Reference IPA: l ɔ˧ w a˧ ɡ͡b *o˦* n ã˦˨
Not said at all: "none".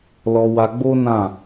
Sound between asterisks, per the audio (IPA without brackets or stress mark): o˦